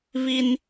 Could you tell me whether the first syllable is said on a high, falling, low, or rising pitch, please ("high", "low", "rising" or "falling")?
high